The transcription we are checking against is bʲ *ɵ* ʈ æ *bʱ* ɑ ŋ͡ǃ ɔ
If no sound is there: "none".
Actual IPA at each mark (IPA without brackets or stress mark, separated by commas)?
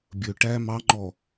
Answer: ɵ, m